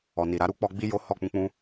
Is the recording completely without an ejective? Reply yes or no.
yes